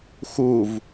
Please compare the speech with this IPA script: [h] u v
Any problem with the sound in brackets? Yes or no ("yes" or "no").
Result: yes